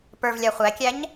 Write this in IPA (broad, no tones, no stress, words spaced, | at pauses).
pə˞vlʲa χʷækʲæɲ